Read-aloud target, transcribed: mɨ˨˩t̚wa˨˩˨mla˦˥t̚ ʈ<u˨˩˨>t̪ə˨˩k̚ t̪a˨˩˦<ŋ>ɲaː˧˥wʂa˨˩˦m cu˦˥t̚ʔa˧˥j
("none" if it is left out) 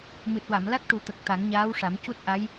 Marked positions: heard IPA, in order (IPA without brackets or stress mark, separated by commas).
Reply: u˨˩˦, ŋ